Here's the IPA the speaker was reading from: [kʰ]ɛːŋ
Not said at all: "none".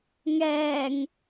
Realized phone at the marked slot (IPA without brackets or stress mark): ŋ